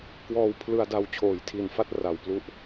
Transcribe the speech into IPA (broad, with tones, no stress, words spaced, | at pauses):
kwɔː˧wpʰlɯ˧a̯da˦˥w t͡ɕʰoː˩˦jtʰi˨˩nfa˥˩t̚ra˩˦w plu˥˩ʔ